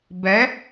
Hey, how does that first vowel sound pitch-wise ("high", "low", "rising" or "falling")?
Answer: rising